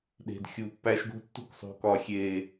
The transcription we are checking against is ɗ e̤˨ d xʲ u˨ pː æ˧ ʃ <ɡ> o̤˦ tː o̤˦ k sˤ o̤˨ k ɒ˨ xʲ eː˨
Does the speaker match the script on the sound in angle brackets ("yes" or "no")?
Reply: yes